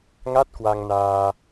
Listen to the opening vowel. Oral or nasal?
oral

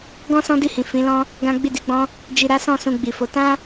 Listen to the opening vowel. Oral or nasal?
nasal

